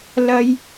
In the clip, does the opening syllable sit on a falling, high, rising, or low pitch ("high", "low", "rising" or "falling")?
high